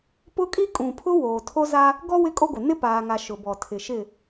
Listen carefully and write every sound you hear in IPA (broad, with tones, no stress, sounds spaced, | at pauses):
p ʊ˦ kʼ i˦ kʼ ũ˨ pʰ ʊ˦ w oː˨ tʰ o˦ z a˦ | ɡ ɔ˦ w ɪ˦ kʼ o˦ ɡʷ ɪ˨ n ɪ˦ p aː˨ ŋ a˨ ʃ ʊ˨ b ɔ˨ tʰ ɪ˨ ʃ ɪ˦˨